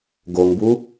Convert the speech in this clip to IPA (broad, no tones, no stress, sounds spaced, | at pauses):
ɡ o ŋ b u